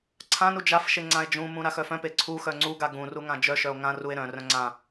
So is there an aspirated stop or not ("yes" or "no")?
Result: yes